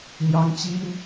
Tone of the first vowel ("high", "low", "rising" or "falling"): high